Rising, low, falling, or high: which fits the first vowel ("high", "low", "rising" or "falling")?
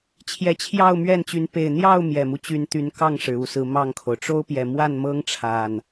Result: rising